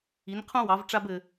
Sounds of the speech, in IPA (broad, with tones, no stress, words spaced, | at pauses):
i˩˧nqʰũ˧wɑ˩˧vʈ͡ʂa˧b ɘ˧